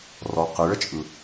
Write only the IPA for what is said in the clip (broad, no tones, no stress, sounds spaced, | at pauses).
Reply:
r ɔ q ɨ ɭ ə t͡ʃʼ ɯ